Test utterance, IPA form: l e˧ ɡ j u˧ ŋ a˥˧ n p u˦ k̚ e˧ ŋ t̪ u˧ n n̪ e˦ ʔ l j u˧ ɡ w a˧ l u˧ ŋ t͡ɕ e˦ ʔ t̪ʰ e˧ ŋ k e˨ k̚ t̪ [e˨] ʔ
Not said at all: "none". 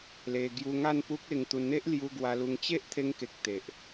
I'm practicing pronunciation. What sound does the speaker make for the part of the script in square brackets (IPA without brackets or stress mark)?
e˨